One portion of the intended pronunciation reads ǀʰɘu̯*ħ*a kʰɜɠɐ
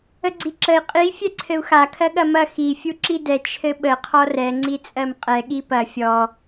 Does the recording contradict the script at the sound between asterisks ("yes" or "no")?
yes